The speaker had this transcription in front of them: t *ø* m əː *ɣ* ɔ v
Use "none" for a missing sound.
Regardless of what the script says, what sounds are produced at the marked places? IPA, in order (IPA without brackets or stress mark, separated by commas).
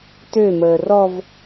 ø, r